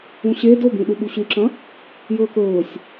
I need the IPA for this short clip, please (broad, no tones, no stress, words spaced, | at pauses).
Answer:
ũɕe dobĩ ɗuɓuɕʉǁɐ̃ | jɵːkɵːsʲ